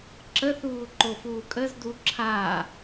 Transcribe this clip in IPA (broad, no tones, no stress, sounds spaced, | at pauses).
ǁ ə θ uː ǃ o f uː kʼ ə z d u ǁʰ a